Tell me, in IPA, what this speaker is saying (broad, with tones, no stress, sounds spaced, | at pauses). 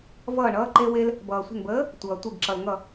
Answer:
v ʌː˧˩ ɳ ʌː˦ ǃ e˦ w e˦ l | b ʌː˩ sʷ ə̤˧˩ n b əː˨˥ | tʷ ʌː˩ tʷ e˧˩ ɡ ǁ ʌ˩ l ŋ ʌ˧˩